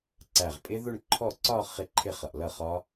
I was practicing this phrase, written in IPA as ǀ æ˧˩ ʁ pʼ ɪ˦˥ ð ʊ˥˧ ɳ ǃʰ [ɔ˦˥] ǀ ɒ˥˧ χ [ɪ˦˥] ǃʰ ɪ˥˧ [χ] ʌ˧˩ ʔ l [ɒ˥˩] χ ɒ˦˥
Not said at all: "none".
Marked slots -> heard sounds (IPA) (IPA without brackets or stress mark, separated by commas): ɔ˥˩, ɪ˥˧, χ, ʌ˥˩